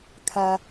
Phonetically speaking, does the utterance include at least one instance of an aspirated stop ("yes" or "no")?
yes